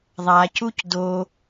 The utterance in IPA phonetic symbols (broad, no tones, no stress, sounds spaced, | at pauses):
ðˤ a c u c d o